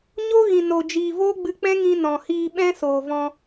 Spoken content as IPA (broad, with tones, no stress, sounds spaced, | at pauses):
ɲ o˦ ɣ ĩ˨ n o˨ d͡ʒ iː˨ v oː˦ ɡ͡b ɨ˧ k͡p ɛ̃˦ ŋ ĩ˧ n ɔ̃˨ h iː˧ ɓ ɛ̃˦ s oː˨ v ɔ̃˧